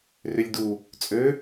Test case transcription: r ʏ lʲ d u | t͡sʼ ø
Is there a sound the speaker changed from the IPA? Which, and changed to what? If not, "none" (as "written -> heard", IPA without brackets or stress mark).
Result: none